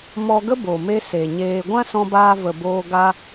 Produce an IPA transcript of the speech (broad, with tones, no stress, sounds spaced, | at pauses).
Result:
m ɔ˧ ɡ ə˦ b o˨ m e˧ s e˨ ɲ eː˧ ɡʷ ã˦ s ɔ̃˧ b aː˧ v ə˨ b oː˧ ɡ a˧